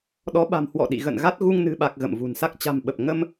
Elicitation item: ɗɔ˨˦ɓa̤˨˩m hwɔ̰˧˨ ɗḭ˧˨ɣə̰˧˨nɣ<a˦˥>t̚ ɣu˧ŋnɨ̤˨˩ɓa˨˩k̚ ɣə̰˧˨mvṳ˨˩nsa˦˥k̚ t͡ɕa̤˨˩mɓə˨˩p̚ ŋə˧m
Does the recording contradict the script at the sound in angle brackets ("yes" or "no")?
no